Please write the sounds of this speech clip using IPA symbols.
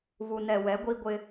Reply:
βu˨nɛ˨wɛ˨˦ ɡʷi˦ɡʷɪ˦

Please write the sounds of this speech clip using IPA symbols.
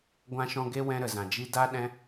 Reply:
ɡʷã˧ʃɔ̃˧ɡe˦wɛ̃˧ ɾə˨zã˨d͡ʒi˦ da˦ ɗɛ̃˦

